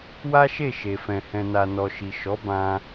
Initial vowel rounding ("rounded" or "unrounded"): unrounded